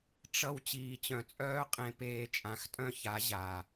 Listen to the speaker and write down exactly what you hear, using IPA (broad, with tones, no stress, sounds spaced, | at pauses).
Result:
ʈ͡ʂ ʌ˧ w t͡ɕ iː˨ t͡ɕ œ̃˨ t͡sʼ œː˦ qʼ ẽ˧ p eː˧ t͡ʃʼ ã˨˦ x tʼ œ̃˦ ç a˨˦ ʑ a˨